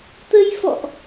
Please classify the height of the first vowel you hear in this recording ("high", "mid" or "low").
mid